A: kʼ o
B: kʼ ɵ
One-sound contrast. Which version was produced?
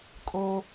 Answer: A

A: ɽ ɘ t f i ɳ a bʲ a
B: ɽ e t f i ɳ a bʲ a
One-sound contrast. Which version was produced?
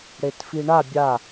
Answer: B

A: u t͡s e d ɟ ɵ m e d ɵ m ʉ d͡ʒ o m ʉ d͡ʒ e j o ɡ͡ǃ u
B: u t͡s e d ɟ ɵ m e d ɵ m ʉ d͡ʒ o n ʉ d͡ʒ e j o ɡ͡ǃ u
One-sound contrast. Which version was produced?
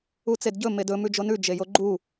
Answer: B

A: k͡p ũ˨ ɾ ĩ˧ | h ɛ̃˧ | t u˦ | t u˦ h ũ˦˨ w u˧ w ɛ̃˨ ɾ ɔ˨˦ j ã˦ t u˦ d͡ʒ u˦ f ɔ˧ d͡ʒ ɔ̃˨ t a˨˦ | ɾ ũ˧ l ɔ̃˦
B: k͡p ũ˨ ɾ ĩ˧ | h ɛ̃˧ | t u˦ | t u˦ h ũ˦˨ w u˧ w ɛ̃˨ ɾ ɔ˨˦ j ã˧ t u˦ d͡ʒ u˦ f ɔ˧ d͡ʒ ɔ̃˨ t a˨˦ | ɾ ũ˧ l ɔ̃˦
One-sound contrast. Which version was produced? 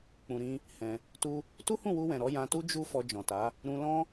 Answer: B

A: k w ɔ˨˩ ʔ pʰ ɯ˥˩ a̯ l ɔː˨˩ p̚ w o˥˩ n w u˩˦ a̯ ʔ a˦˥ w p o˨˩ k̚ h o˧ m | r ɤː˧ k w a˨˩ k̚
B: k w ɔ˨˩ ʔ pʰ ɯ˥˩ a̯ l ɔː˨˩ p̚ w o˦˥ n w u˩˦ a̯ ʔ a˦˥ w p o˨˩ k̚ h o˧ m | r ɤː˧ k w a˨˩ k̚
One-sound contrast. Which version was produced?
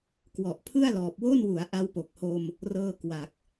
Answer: A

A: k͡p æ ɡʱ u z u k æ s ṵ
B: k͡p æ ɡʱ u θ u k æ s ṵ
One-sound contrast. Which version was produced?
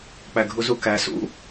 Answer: A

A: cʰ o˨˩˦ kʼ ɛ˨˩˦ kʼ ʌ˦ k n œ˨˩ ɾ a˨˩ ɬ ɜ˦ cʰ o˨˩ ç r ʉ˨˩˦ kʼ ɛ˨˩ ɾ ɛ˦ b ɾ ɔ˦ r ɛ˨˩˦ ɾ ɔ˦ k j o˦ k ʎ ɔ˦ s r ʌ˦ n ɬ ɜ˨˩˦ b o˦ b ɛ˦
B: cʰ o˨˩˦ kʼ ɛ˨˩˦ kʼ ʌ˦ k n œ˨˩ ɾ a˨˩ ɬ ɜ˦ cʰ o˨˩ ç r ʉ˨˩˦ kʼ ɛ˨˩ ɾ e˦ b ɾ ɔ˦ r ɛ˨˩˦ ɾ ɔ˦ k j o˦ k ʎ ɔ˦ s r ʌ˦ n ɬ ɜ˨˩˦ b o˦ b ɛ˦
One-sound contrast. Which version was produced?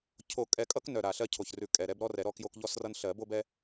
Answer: A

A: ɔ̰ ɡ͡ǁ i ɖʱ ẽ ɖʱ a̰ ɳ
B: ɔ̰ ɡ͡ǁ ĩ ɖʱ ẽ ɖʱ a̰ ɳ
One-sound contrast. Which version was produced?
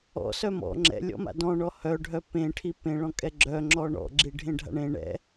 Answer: A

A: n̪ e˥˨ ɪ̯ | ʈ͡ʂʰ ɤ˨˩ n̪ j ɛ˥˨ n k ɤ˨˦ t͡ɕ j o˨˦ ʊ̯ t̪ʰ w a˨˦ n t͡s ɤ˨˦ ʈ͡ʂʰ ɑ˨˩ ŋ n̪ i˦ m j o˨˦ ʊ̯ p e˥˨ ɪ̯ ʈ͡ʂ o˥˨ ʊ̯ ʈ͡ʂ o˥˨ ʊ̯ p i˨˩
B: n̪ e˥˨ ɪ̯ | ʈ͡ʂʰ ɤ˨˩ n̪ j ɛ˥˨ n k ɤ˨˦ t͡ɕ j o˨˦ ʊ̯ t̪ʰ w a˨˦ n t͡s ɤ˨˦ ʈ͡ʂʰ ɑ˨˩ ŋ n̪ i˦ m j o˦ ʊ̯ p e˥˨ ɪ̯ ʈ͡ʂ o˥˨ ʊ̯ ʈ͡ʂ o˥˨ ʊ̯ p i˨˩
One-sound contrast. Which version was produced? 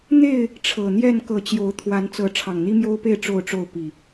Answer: B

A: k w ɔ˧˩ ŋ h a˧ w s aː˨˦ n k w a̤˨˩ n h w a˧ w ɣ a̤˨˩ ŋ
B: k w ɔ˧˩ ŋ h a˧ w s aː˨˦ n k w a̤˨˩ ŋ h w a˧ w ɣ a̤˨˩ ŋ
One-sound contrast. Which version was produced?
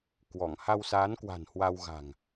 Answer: A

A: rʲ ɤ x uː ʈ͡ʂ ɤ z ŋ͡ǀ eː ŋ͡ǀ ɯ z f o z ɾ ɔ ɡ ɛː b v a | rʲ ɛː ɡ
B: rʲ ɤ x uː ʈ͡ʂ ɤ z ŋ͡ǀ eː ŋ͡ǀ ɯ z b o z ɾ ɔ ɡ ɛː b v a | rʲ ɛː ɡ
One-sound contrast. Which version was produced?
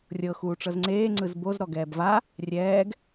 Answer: B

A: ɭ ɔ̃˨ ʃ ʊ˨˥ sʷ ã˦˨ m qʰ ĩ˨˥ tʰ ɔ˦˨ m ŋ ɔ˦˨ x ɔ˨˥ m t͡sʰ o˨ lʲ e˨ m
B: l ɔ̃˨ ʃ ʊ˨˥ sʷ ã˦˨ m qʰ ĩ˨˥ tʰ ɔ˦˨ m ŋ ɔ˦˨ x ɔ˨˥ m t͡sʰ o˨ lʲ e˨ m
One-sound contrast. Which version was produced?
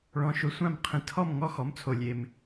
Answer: A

